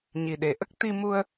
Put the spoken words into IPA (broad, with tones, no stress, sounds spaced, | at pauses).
ɲ i˨˩ ɗ e˨˩ ʔ ə˦˥ k̚ t̪ i˧ m u˧ ə̯